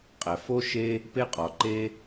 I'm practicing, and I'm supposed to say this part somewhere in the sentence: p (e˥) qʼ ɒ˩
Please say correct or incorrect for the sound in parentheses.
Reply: correct